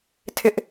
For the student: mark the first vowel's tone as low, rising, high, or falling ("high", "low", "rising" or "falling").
high